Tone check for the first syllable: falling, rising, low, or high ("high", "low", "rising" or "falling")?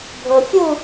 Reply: low